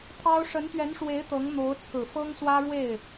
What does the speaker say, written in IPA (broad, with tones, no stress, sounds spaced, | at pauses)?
t̪ʰ ɑ˥ ʊ̯ ʂ ə˧˥ n t̪ ɥ ɛ˧˥ n ʂ w e˧˥ ɪ̯ t̪ ɤ˧˥ ŋ n̪ o˧˥ ʊ̯ t͡sʰ ɹ̩˨˩ f ɤ˥ ŋ s w ä˥ ɻ w e˥˩ ɪ̯